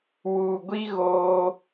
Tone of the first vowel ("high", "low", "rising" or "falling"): low